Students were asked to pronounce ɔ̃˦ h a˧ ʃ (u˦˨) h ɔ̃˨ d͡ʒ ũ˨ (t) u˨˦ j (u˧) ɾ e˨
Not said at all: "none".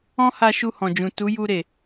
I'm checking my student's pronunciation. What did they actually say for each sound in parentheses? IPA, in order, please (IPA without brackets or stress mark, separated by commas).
u˧, t, u˧